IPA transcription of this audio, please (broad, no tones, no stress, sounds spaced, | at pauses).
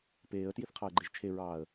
p eː ə̯ t j i θ qʰ ɑ ə̯ ɡ͡ǃ e ʒ t͡ʃʰ e ɹ ɑː ə̯